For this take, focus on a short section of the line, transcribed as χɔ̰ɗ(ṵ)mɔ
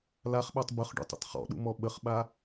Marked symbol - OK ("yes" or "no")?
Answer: yes